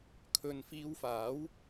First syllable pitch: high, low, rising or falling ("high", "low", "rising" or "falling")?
low